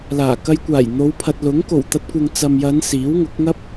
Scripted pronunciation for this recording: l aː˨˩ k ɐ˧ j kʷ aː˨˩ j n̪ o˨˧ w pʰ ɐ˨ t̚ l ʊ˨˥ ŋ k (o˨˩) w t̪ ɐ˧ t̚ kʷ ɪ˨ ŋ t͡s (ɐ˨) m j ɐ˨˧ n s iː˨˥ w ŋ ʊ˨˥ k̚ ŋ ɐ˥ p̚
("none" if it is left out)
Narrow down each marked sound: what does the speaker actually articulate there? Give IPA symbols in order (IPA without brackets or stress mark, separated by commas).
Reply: o˨˩, ɐ˨